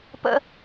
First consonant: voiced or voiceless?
voiceless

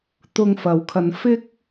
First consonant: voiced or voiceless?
voiceless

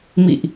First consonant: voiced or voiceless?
voiced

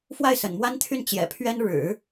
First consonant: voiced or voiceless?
voiceless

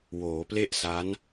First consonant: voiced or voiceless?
voiced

